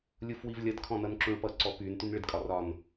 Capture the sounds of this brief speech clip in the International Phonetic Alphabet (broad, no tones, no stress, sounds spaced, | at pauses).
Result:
lʲ u f w i v lʲ ʌ d kʰ ɔ̃ n ʌ n ǁ ũ ɭ p ʌ ǀ ɔ p y n t y n ɭ ɪ d kʼ ɒ r ɒ n